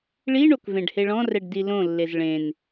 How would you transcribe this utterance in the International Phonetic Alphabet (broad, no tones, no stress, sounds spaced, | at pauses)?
ɭ i ɳ o k v ẽ ɖ h e ɭ ɔ̃ r ɛ ɖ d i l õ lː e z ɭ ẽ n